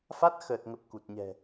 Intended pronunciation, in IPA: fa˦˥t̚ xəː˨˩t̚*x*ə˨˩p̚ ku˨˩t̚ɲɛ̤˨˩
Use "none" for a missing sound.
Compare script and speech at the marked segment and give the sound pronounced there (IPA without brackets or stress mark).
ŋ